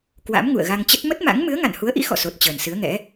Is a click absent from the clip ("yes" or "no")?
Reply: yes